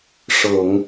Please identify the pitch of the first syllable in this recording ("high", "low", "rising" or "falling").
low